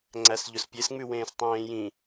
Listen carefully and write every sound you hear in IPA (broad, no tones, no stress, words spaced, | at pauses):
ŋ͡ǀæsʎɵspʲes ŋ͡mʉwẽːstˤẽːjĩ